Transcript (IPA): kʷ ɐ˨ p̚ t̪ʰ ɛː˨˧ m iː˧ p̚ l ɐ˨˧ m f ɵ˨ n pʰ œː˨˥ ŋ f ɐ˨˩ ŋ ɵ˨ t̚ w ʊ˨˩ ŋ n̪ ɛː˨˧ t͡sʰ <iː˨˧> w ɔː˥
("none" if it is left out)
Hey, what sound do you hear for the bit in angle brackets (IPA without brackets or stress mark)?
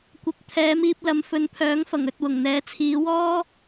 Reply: iː˨˧